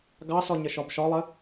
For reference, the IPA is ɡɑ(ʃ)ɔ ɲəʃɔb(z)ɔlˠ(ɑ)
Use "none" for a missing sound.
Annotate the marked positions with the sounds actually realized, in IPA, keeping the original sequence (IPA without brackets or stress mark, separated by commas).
s, ʃ, ə